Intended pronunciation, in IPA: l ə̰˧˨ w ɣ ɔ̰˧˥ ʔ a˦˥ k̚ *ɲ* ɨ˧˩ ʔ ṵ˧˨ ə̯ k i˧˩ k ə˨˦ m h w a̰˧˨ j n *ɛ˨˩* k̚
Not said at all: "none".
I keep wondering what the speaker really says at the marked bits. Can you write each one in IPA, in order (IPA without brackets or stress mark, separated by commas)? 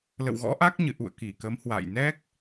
ɲ, ɛ˦˥